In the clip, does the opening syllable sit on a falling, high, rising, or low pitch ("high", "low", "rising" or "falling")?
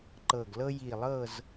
low